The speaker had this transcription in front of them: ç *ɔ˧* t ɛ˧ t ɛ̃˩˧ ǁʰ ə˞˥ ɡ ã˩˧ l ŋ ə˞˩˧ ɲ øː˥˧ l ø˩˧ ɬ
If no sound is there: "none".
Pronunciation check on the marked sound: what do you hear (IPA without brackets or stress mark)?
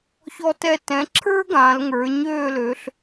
ɔ˧